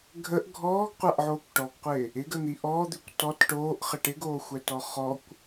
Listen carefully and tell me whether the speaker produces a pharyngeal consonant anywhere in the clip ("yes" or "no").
yes